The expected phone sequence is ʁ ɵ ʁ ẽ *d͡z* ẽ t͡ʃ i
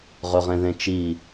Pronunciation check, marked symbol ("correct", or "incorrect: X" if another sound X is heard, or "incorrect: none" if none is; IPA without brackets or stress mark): incorrect: ð